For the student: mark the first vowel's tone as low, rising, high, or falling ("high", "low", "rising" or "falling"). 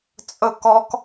falling